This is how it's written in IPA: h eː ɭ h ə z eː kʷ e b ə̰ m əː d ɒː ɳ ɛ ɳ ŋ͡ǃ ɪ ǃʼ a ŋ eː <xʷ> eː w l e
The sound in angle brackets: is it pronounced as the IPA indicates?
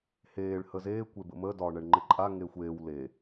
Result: yes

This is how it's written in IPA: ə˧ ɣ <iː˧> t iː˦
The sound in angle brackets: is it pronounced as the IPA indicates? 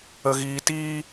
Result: yes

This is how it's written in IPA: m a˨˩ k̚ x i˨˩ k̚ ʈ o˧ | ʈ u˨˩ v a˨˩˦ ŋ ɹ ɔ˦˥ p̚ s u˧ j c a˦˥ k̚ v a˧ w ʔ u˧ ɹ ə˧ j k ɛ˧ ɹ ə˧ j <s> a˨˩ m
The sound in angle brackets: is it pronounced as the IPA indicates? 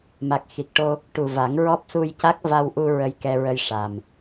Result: no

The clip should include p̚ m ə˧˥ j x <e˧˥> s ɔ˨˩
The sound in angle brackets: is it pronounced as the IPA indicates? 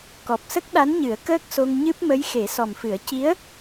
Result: no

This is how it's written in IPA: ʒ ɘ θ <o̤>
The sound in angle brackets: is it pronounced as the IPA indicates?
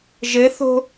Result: yes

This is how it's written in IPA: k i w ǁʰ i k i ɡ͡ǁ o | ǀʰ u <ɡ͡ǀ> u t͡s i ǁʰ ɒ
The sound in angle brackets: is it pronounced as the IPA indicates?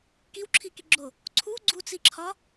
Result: yes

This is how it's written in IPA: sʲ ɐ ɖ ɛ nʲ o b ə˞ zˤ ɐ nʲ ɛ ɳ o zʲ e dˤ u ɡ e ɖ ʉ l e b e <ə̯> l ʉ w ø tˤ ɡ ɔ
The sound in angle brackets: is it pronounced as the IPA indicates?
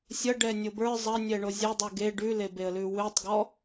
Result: yes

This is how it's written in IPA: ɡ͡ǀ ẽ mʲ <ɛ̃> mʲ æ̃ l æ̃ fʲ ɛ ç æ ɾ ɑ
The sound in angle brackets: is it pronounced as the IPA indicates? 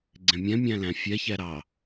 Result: yes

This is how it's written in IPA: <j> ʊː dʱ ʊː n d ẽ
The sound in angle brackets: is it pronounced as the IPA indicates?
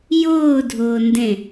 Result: yes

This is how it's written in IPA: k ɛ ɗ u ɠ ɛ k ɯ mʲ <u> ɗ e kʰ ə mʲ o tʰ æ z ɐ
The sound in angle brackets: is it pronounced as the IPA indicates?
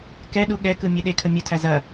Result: no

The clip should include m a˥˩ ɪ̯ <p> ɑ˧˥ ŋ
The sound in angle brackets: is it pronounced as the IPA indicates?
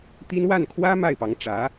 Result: yes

